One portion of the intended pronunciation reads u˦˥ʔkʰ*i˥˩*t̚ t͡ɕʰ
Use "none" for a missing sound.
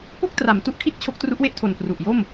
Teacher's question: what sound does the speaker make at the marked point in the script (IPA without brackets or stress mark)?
i˥˩